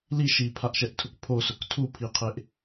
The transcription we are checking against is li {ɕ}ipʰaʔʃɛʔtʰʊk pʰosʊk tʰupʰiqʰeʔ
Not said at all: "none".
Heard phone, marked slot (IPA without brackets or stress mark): ʃ